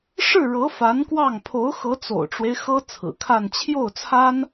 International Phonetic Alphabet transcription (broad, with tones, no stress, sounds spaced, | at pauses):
ʂ ɻ̩˥˩ ɻ ɤ˧˥ f a˧˥ n k w ɑ˥˩ ŋ pʰ o˧˥ ʊ̯ x ɤ˧˥ t͡s o̰˨˩ ʊ̯ ʈ͡ʂ w e˦ ɪ̯ x ɤ˥ t͡sʰ ɹ̩˨˩ kʰ a˥˧ n t͡ɕʰ j o˥˩ ʊ̯ t͡sʰ a˥ n